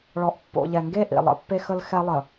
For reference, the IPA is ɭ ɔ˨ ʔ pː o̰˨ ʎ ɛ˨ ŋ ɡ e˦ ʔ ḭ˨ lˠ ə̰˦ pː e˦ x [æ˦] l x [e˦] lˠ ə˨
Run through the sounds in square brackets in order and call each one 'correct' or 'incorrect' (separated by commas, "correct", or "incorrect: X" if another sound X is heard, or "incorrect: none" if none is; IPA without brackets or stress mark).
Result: incorrect: ə˦, incorrect: ɛ˦